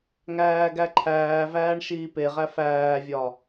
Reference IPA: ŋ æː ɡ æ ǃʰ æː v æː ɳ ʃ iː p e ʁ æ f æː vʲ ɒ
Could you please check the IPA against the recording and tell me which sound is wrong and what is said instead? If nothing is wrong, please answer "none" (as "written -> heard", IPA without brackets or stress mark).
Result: none